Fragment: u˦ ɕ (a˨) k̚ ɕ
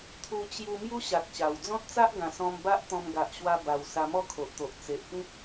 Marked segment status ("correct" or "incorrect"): correct